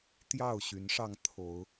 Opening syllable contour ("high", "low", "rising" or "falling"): falling